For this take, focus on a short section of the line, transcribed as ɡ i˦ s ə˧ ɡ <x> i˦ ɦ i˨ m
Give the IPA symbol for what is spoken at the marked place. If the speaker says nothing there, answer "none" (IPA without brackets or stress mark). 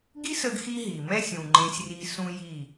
x